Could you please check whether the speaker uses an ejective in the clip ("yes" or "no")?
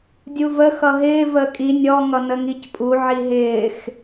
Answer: yes